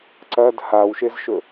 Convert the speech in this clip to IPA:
ǀɐd hawʃezʃɵ

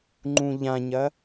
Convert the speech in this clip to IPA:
ŋ͡ǃũʎãɲɐ

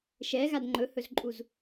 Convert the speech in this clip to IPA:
ʃɛɣad ŋ͡ǃɵhɵzǃʼuz

